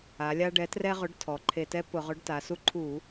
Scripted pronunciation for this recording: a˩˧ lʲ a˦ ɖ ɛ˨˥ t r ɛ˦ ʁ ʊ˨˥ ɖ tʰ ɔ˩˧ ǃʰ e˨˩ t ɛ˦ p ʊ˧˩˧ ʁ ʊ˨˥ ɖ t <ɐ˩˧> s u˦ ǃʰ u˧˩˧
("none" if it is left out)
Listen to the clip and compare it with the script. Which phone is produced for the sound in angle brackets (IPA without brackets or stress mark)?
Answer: a˩˧